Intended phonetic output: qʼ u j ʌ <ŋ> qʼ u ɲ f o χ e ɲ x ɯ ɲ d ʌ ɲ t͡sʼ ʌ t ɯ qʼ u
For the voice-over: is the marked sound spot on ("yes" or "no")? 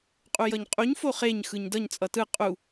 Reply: no